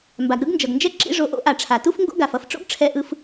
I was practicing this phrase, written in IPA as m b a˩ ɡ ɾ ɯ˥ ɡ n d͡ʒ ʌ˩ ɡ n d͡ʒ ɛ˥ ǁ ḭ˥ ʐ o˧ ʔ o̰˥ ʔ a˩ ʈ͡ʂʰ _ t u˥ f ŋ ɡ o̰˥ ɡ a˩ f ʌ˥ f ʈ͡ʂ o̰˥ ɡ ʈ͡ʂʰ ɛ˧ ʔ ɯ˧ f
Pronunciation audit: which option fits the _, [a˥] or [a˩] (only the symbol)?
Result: a˩